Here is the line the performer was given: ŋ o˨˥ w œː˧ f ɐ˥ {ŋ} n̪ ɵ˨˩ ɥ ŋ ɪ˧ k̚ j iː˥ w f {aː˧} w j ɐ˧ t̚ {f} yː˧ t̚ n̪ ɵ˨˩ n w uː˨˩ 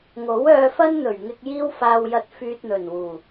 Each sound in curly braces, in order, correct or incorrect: incorrect: n, correct, correct

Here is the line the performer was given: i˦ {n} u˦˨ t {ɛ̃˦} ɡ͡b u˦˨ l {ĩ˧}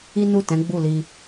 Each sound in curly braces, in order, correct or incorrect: correct, incorrect: ɛ̃˨˦, incorrect: i˧

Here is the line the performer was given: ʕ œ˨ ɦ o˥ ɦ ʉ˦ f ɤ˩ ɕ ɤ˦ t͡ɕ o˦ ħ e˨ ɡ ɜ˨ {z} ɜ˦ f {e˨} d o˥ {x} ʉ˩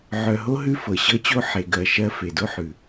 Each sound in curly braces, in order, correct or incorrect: incorrect: ʃ, incorrect: e˩, incorrect: ħ

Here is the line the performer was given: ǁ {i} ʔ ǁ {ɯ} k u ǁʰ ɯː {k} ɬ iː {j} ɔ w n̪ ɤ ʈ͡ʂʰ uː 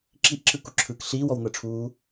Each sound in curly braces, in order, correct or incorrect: correct, correct, correct, incorrect: w

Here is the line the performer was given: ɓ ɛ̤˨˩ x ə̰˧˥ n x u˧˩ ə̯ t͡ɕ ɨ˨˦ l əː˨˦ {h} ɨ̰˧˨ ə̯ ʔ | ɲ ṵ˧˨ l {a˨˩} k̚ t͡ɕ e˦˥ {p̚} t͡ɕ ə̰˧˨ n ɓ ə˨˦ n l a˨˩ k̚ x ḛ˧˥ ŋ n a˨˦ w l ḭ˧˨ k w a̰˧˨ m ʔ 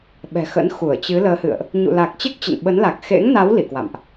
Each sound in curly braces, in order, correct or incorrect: correct, correct, incorrect: k̚

